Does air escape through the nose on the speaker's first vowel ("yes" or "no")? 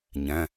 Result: yes